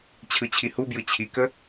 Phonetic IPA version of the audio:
t͡ɕʰ ɯ t͡ɕʰ i h u b j ɯ t͡ɕʰ i k ə

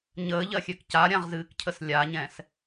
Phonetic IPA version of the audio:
ɲ əː ʎ ɜ xʲ ø k c a ɾʲ ã ʁ z ɨː k cʰ ə s lʲ a ɲ ɛ̃ s

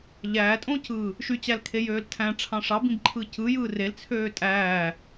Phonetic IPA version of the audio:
ʎ æː tʼ õ c ɯː | ʃ y t͡ɕ æ l kʰ e j øː l tʰ æ̃ ʈ͡ʂʰ ɑ̃ ʂ ɑ b ĩ b ǃʰ ɯ c ɯ j ɯː r e l t͡sʰ øː tʼ æː

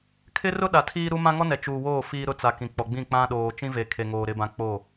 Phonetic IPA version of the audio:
kʰ ɪ˦ r ʊ˦ ɗ a˨ tʰ iː˦ ɾ u˦ m ã˦ ŋ ɔ˦ n ɛ˨ t͡ʃ uː˨ w oː˦˨ f iː˦ ɾ ʊ˦ t͡s a˨ k ĩ˨ k͡p ɔ˨ ɡ͡b ĩ˦˨ k͡p ã˦ ɗ oː˨ t͡ʃ ĩ˦ v e˨ kʰ e˨ ŋ oː˨ ɾ ɪ˦ b ã˦ k͡p o˦˨

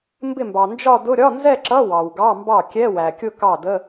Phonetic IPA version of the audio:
m b ɪ˥˩ m b ɑ˩ n d͡ʒ ɒ˥˧ d ʊ˧˥˧ ɾʲ ɒ˧˥˧ n z ɛ˥˧ ǁ ʌ˧˥˧ w ɑ˩ w ɡ ɑ˧˥˧ m b ɑ˥˩ kʲ ɛ˧˥˧ w æ˩ kʲ ʊ˥˧ k ɑ˥˩ d ə˧˥˧

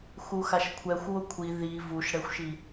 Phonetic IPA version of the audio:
x u x a ʃ kʷʰ ɛ xʷ w ʊ kʷʰ i ð i v u ʃ ɽ ɛ xʷ ʃ i

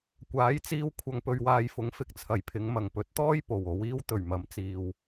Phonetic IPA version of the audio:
kʷ aː˨˥ j t͡s iː˧ w kʷʰ ɐ˨ ŋ p ɵ˨ ɥ w aː˨ j f ʊ˨˥ ŋ f ɪ˨ k̚ t͡sʰ ɐ˨˩ j pʰ ɪ˨˧ ŋ m ɐ˨˩ ŋ p ɵ˨˥ t̚ t̪ ɔː˥ j p o˨˩ w o˨˧ w iː˥ w t̪ ɵ˨˩ ɥ m ɐ˨˥ m t͡s iː˨ w

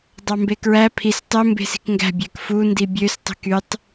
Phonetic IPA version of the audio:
dˤ ɑ m b e k ɹ æ pʰ i s tˤ ø m b e̤ s i̤ k ŋ ɡ æ̤ bʲ æ k f u n d i bʲ ø s tˤ i̤ k y tˤ

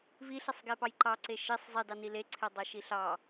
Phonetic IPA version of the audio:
v i ɬ e sˤ ɡ e p ɑ j ǃ ɑ ǀ e ʃ i sˤ zˤ i d ɑ n i l e ǀʰ e dˤ a ʃ i ɬ ɑ

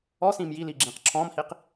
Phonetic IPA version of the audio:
ɔ s ĩː m j i l iː ɡ͡ǁ ĩː q ǁʰ ɔ̃ː m h i q

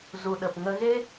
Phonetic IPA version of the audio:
z u˨ ɗ ə˨ p ŋ ə˧ ɣ e˦

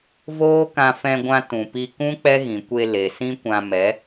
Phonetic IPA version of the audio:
v oː˦ k ã˧ f ɛ̃˧ ɡʷ ã˧ t ũ˨ p i˧ k ũ˦ k͡p ɛ˦ ɣ ĩ˨ kʷ e˧ l e˨ s ĩ˦ kʷ ã˧ m ɛ˨˦

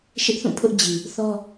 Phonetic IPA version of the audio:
ʃ ɪ˦ ʔ θ ũ˦˨ pʰ ʊ˦ ʔ d͡ʑ i˨ | θ ɔ˦

